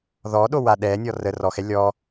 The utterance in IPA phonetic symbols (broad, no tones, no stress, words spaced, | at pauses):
ðɔɗowa ɗɛ nʲɔrə rɔxɛ lʲɔ